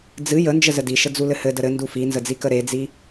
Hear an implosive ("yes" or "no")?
no